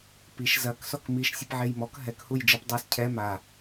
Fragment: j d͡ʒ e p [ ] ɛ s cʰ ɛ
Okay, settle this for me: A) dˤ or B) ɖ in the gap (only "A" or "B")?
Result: A